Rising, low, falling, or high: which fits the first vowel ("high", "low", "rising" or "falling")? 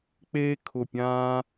high